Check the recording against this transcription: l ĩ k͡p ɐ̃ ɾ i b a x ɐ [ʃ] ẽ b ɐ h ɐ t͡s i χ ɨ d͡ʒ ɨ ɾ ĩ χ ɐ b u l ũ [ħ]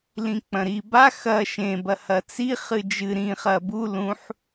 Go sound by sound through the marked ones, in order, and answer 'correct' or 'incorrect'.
correct, correct

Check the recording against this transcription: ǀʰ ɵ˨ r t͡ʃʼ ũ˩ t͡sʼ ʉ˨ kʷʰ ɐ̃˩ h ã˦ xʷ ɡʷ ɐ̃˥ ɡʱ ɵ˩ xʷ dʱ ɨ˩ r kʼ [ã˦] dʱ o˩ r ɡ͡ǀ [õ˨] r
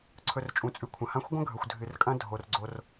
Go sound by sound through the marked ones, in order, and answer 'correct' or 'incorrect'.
incorrect: ɐ̃˦, incorrect: o˨

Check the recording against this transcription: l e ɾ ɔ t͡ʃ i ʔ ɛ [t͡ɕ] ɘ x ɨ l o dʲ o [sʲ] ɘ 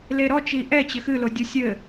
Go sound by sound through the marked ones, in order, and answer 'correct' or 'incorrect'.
correct, correct

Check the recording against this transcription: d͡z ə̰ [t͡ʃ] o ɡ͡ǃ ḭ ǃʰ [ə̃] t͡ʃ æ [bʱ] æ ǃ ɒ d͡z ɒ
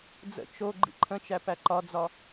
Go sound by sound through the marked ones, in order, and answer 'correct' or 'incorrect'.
correct, correct, incorrect: p

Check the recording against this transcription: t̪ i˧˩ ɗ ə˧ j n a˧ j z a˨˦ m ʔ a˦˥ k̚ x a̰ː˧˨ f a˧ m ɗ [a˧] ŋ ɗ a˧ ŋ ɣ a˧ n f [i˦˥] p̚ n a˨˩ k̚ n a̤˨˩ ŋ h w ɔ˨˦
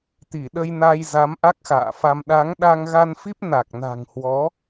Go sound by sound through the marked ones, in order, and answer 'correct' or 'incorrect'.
incorrect: a˨˦, correct

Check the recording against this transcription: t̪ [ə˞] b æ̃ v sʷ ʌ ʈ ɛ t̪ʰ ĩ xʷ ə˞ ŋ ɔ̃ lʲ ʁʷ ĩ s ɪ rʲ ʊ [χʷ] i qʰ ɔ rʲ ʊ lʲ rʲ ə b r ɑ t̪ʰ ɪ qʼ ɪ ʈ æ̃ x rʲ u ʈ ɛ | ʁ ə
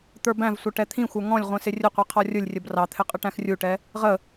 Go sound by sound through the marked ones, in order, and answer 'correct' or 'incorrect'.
correct, incorrect: qʷ

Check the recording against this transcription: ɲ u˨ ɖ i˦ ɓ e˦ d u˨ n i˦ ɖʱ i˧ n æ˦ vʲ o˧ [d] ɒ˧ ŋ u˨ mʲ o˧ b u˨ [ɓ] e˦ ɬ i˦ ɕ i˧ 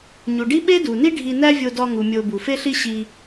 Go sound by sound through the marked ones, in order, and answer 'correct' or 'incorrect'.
correct, incorrect: f

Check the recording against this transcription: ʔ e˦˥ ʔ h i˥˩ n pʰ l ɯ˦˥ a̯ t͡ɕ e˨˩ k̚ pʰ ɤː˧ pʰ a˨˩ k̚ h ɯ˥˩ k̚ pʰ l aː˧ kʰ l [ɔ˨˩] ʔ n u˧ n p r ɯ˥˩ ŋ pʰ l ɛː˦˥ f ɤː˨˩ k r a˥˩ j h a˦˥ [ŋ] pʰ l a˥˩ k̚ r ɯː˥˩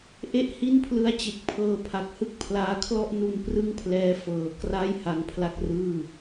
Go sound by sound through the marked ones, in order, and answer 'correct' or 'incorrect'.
incorrect: ɔ˥˩, correct

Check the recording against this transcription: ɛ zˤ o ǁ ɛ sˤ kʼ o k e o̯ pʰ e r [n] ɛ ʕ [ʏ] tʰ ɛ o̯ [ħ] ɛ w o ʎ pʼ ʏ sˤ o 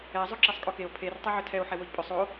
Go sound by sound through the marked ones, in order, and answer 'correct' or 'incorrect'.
incorrect: tˤ, correct, correct

